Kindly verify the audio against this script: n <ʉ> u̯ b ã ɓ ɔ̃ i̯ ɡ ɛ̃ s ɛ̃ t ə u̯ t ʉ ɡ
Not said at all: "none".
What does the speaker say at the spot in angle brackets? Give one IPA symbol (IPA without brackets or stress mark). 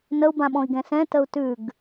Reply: ə